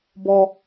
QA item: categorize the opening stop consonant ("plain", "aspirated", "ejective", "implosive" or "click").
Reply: plain